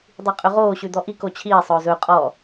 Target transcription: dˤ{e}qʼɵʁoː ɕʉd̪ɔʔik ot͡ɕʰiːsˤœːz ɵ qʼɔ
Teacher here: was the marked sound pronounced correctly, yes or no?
no